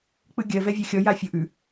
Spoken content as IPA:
k͡p ɯ ɡʲ ɜ v ɛ vʲ ɜ xʲ ɔ j a fʲ o ʔ ʉ

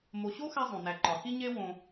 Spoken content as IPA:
m o˨ ɕ o˥ x æ˥ zˤ õ˩ n æ˨ ǃ ɒ˩ x i˥ ɲ e˥ w õ˨

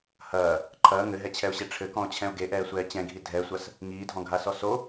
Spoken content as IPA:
h ɐː | ǃʰ ɐː ŋ ɘ ɦ ɛ t͡ɕʰ ɛ ʊ̯ ɕ e ʈ͡ʂʰ ɘ k ɔ̃ ʊ̯ t͡ɕʰ ɛ̃ ʊ̯ ɡ e ʔ ɛː sʷ ɛː t͡ɕ ɛ̃ ɡʱ i dʱ ɛ sʷ ɐ s | ŋ iː dʱ ɔ̃ ɡʱ a s ɔ s o

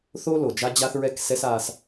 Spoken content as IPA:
θ o˦ l o˨ d͡ʒ a˦ d͡ʑ a˦ θ ɹ ɛ˦ k s ɛ˦ s a˦ s

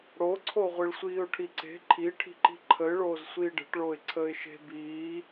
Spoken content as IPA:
ɽ o ǀʰ o ʁʷ i ɭ sʷ iː ʊ̯ ʈʰ i ǀ e̤ ǃʰ i ʈʰ i̤ ǃ i̤ ǃʰ ə ɪ̯ ɭ oː z sʷ iː ɖ e̤ ʈ ɭ oː ɪ̯ ǀʰ əː ɪ̯ ʃ e̤ b iː

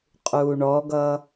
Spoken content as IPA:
qʼ uː ɳ ɔ ɡ ʌ

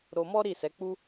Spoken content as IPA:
ɾ o˧ m ɔ˦ ɾ i˦˨ s ɛ˨˦ k͡p u˦

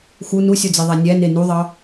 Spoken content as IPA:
x u n u sʲ o d͡z i ðˤ æ nʲ æ n e n u ðˤ ɑ

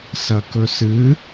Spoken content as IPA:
s ɐ k ɵ s ɨ

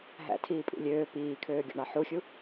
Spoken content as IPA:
ɦ æ̰ tʰ iː pʼ ḭ lʲ øː p iː kʰ øː ɡʲ o̰ ɳ ɑ ħ u xʲ u

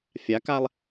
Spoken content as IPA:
fʲ a k a lˠ

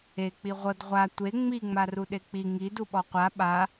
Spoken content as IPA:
e k͡p i ʁʷ ɤ d ʁʷ a tʷ e ŋ͡m i ŋ͡m a r u ɗ e k͡p i ŋ i d u ɓ ɔ qʷ a ɓ a

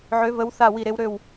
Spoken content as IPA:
ʕ ø˨˦ v ə˨˦ w θ a˧˩ w i˧˩ ɾ e˨˦ w ɾ ø˧˩ w

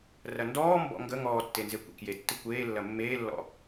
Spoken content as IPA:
r ɐ n d ɔː m b ɔ̰ ŋ ɡ ə ŋ ɔː tː e n z e kʷ ḛ k j e tː ə kʷ eː lː ɐ mː eː lː ɔ̰

